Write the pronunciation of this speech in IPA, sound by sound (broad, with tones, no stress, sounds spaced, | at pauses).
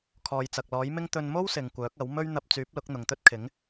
kʰ ɔː˨ j t͡s ɐ˨ k̚ l ɔː˨˥ j m ɪ˥ ŋ t̪ ɵ˧ n m o˥ w s ɪ˨ ŋ kʷ œː˨˥ k̚ ɐ˨˥ w m ɵ˥ ɥ n̪ ɐ˧ p̚ t͡s yː˨˥ p̚ l ʊ˨˥ k̚ n̪ ʊ˨ ŋ t̪ ɵ˥ t̚ kʰ ɪ˨˥ ŋ